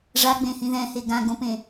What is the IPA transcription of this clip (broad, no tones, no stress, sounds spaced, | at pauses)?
ʐ a ɡ͡b ẽ h ĩ ð ɛ̃ h e ɡ ã ɡ õ p ẽ